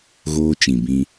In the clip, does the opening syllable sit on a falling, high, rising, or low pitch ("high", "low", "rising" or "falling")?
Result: high